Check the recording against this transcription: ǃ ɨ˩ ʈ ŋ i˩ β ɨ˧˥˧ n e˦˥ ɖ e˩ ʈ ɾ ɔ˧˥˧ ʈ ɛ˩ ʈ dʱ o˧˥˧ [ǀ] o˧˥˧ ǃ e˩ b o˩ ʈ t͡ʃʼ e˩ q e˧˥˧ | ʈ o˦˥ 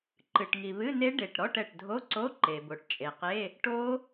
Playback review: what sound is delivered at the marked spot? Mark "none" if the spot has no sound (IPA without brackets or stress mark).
ǀ